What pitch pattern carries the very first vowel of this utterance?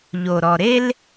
low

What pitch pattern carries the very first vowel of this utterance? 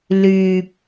low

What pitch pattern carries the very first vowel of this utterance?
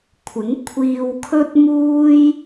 rising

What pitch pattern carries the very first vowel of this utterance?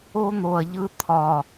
high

